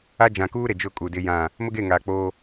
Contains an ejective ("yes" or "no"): yes